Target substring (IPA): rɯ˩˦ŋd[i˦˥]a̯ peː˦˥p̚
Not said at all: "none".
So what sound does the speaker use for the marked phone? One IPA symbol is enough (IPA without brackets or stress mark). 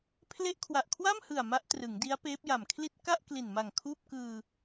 i˦˥